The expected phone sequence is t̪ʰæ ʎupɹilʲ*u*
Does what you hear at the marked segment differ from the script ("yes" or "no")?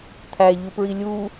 no